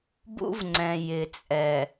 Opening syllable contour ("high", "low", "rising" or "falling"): high